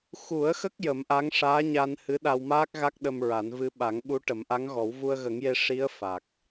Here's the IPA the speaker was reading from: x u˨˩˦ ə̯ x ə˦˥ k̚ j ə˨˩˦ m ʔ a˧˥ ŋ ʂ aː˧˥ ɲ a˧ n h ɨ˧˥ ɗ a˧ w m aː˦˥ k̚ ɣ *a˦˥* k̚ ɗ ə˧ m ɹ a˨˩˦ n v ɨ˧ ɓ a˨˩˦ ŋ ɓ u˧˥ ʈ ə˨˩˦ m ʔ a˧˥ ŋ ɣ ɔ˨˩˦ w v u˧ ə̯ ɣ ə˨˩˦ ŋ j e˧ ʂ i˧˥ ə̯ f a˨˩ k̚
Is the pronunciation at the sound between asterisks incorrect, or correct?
correct